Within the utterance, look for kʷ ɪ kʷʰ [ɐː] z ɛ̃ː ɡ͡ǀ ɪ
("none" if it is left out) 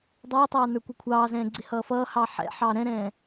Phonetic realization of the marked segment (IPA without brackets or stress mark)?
ɑː